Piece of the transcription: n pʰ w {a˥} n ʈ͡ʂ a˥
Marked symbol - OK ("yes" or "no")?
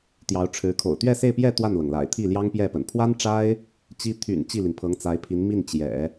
yes